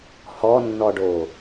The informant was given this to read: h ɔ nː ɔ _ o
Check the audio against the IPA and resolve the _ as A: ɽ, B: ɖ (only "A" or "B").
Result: B